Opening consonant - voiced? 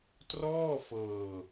no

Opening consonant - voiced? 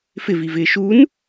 no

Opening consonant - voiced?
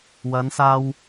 yes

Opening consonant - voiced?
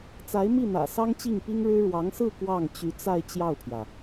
no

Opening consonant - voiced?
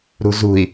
yes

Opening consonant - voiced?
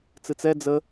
no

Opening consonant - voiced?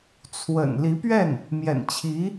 no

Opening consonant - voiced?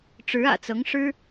no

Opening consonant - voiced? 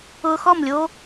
no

